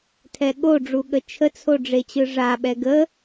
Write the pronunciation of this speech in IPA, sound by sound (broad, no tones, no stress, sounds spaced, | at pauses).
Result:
tʰ ɛ ɠ o ɖ͡ʐ u ɠ ə t͡ʃʰ ə t͡sʰ o ɖ͡ʐ e t͡ɕ ɯ ʐ a ɓ ɛ ɡ ə